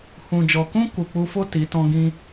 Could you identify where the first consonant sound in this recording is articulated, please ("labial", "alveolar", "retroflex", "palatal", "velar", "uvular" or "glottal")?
glottal